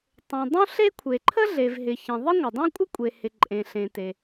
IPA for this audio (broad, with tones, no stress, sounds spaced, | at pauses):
tˤ õ˩ dˤ õ˥ ɬ e˥ kʷʰ e˩ ǃʰ ə˥ ɮ e˩ v ɦ ɪ˩ ç ẽ˩ ðˤ ɪ˥ ŋʷ ɪ˩ dˤ õ˥ kʷʼ ɪ˥ kʷʼ e˩ h ɪ˩ ǃʼ ẽ˩ ɬ ẽ˩ t e˩